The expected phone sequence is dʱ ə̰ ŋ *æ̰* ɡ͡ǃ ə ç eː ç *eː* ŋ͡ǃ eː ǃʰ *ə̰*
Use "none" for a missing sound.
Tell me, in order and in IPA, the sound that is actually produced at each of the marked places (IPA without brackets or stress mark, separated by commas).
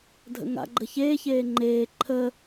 a̰, eː, ə